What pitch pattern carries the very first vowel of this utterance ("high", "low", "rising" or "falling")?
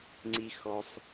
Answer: low